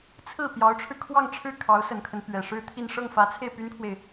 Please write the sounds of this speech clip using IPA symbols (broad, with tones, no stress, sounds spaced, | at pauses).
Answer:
t͡sʰ ɹ̩˥˩ p j ɑ˧˥ ʊ̯ ʈ͡ʂʰ ɻ̩˧ kʰ w ɑ˥˧ ŋ ʈ͡ʂʰ ɻ̩˥˩ kʰ ɑ˧˥ ʊ̯ s ə˨˩ n kʰ ə˦ n p ɥ ɛ˨˩ ʂ ɻ̩˥ t̪ʰ i˥˧ n ʂ ɤ˥˩ ŋ f ä˧˥ t͡sʰ e˥˩ ɪ̯ p y˥ n kʰ w e˨ ɪ̯